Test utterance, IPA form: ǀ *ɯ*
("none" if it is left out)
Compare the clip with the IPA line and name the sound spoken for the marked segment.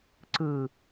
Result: ɯ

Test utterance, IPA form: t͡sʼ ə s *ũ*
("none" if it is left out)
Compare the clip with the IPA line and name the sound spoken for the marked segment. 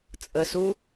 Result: u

